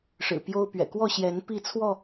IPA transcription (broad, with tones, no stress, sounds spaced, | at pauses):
ʂ ɻ̩˨˩ p j o˦ ʊ̯ p ɥ ɛ̰˨˩ k w ɔ˥˨ ɕ j ɛ˨˦ n p i˥˨ t͡sʰ w ɔ˥˨